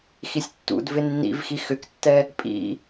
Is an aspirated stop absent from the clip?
yes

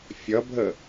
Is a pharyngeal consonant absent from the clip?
yes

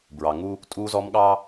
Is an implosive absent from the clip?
no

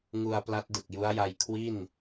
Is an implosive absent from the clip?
yes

